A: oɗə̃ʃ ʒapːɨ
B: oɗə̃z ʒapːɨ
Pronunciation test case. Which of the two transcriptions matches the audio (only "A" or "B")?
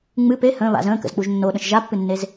A